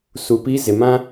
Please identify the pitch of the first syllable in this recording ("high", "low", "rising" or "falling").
low